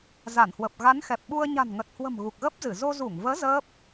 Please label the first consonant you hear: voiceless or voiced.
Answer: voiced